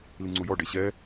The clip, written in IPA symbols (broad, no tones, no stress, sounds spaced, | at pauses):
l i ŋ͡ǀ u j ɔ ɖ e ɕ ɛ